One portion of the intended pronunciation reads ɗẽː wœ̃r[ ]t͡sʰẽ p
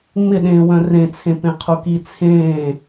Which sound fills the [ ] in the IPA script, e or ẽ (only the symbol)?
ẽ